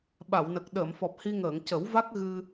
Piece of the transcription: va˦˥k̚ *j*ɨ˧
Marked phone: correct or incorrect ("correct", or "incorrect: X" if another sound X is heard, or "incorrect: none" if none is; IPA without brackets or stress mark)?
incorrect: ɣ